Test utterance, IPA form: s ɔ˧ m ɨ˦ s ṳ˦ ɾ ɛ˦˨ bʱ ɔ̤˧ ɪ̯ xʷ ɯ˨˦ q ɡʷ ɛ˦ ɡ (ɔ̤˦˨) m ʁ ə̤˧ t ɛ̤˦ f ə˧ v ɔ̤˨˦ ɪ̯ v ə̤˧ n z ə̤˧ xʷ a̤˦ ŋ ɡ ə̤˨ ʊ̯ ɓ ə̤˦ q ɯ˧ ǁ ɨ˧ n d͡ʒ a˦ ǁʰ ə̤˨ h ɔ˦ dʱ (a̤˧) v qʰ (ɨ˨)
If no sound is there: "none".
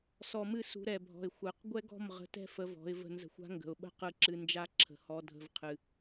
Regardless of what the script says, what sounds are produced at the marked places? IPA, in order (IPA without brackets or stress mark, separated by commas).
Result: ɔ̤˦˨, ə̤˧, ɨ˨